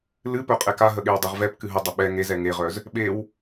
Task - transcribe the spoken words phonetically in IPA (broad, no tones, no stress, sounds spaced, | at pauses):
l ɨ p œ qʼ ɛ k a ɦ ə ɠ e w dˤ ɛ ʁ v ɛ p k ɨ ɦ ə dˤ ə ɓ ɛ ŋ e z ɛ ŋ e ʁ œ z | ɓ e w